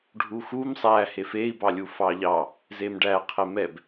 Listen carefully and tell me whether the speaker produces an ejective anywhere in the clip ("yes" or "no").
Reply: no